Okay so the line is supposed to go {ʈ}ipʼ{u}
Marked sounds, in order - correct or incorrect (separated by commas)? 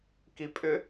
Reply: incorrect, incorrect